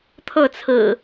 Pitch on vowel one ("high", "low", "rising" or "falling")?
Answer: falling